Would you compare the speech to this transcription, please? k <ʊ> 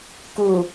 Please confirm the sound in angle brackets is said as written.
no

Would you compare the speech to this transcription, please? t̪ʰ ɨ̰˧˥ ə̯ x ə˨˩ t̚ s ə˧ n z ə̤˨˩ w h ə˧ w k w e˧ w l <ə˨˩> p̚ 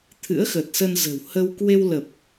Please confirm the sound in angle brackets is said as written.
yes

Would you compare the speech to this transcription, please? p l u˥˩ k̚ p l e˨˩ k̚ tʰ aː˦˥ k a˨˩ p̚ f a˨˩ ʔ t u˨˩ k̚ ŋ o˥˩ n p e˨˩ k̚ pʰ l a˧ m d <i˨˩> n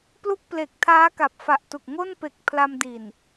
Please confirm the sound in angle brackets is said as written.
yes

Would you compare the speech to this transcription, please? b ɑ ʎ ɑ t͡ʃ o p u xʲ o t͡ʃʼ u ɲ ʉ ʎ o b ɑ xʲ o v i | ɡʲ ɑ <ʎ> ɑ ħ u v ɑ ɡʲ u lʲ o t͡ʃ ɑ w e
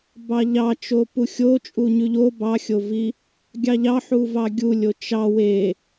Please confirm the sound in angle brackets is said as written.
yes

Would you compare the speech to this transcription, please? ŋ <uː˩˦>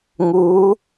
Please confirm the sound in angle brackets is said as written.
no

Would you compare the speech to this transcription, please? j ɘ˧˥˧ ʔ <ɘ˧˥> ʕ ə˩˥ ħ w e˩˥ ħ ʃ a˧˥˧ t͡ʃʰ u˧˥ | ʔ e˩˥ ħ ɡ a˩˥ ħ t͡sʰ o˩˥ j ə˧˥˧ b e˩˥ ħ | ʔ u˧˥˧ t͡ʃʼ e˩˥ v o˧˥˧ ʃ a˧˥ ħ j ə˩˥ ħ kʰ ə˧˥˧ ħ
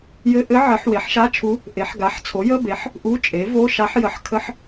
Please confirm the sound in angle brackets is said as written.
yes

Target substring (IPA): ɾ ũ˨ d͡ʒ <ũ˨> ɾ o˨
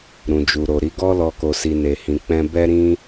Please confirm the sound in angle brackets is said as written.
no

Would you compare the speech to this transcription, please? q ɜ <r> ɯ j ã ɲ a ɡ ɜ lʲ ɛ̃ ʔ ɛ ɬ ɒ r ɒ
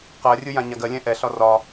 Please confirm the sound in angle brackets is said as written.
no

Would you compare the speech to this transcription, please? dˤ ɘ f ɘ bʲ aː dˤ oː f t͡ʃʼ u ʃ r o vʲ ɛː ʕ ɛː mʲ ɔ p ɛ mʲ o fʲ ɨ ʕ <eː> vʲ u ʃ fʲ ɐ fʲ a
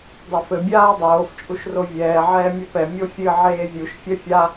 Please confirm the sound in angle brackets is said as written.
yes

